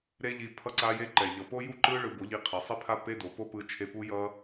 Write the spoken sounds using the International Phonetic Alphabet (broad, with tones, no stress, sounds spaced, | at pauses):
ɾ e˦ ʎ i˧ pʰ ʌ˦ ǀ a˦ j e˦ ǃ ɛ˨ ʎ ʌ˨ p o˦ j u˦ ǃ ɯ˦ ɭ ɯ˧ b o˨˦ ʎ i˧ qʰ e˨ sˤ i˦ pʰ a˦ p e˦ d o˨ p o˦ p ɯ˧ t͡ʃʰ e˧ p u˦ j ʌ˦